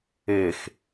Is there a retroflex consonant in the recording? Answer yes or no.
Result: no